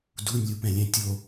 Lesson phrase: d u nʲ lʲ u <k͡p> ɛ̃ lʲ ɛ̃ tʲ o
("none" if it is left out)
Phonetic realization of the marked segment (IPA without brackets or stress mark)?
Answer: p